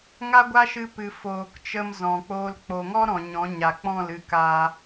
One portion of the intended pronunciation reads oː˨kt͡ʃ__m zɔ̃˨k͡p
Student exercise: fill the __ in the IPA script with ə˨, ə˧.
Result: ə˧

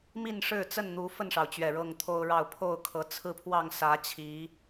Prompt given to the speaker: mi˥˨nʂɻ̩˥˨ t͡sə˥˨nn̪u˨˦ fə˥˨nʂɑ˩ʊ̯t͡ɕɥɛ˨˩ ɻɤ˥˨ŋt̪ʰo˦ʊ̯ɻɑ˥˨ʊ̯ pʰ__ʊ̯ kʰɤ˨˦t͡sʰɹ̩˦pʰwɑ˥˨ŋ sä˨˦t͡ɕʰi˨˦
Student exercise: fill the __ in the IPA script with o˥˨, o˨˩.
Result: o˥˨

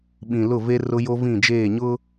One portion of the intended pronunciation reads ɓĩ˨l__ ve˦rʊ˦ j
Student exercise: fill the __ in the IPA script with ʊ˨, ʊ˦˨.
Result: ʊ˦˨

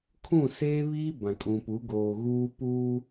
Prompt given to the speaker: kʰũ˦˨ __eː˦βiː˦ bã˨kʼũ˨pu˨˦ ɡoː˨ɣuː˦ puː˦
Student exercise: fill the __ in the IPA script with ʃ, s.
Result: s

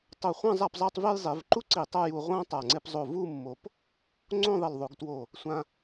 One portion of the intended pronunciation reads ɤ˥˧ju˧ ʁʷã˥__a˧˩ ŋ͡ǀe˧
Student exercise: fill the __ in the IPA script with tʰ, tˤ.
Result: tˤ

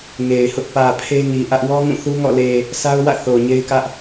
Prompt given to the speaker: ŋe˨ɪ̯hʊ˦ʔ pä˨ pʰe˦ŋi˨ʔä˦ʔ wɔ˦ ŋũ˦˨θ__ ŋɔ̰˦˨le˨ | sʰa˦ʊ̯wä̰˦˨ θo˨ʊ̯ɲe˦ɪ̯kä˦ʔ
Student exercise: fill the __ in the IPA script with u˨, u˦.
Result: u˦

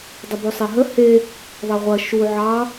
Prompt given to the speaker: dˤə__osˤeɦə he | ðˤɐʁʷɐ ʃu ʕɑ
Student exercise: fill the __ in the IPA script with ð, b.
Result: b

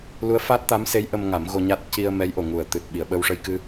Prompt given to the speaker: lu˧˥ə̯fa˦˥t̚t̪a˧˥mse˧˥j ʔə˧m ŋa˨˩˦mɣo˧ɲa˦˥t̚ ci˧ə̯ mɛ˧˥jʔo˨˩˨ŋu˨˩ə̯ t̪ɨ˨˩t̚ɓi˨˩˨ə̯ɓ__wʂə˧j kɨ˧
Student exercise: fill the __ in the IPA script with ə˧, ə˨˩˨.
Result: ə˧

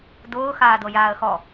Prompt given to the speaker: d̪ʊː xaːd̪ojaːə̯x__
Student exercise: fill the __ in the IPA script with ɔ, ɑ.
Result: ɔ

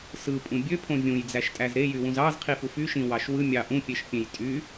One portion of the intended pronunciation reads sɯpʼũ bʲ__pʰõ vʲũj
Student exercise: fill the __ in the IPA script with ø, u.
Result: ø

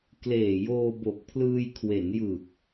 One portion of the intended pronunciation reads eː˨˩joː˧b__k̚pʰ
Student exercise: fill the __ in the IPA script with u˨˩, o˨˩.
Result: o˨˩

